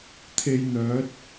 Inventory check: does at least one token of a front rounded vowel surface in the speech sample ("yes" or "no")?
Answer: yes